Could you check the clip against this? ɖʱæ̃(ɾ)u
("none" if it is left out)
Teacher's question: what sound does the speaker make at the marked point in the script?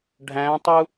tˤ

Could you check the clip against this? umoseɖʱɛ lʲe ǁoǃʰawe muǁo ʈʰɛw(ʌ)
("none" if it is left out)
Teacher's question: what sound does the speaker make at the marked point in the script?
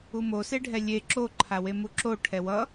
ʌ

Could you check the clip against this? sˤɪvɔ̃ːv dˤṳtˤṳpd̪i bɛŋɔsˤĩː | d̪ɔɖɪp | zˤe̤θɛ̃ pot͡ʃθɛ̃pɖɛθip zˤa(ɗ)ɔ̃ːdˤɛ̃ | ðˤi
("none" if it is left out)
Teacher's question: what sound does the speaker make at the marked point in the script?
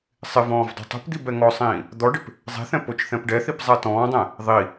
t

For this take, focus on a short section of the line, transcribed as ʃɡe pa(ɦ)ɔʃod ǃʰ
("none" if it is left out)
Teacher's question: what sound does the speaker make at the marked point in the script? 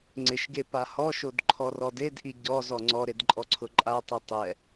h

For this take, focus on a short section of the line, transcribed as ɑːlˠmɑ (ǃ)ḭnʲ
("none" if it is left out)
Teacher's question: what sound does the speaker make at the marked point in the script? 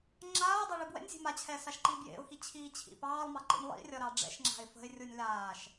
ǃ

